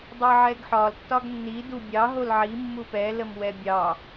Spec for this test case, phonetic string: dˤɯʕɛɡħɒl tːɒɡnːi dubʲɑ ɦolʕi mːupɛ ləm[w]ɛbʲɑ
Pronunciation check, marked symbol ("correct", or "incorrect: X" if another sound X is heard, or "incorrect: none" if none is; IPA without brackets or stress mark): correct